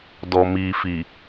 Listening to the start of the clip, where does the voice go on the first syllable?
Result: low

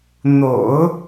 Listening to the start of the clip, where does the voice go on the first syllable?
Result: low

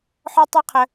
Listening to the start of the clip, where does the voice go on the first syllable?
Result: high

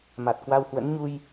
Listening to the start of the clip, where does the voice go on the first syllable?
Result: low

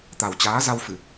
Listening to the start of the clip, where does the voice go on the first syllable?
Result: low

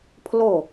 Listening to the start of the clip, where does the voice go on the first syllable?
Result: falling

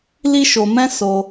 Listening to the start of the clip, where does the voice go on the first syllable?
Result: high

